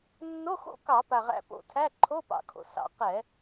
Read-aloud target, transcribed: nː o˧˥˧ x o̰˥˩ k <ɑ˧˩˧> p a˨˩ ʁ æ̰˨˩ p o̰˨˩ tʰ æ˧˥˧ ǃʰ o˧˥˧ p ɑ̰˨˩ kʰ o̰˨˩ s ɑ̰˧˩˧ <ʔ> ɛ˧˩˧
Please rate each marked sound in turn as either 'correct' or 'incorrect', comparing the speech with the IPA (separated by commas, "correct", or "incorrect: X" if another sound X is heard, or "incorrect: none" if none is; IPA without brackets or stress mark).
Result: correct, incorrect: q